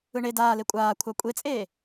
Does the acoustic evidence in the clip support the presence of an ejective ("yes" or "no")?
yes